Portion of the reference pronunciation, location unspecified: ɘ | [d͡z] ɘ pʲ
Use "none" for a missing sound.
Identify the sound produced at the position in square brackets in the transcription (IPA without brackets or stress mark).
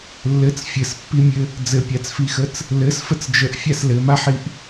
d͡z